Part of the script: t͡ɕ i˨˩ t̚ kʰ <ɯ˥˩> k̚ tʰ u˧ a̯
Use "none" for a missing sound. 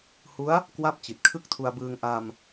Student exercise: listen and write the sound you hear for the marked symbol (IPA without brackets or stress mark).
ɯ˥˩